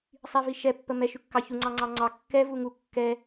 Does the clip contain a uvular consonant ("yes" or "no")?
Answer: no